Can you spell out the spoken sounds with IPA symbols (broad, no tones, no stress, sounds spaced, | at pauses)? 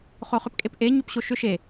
χ o χ ʏ p kʼ e p ʔ e ɲ ʏ p ɕ o ʃ ʏ ʃ e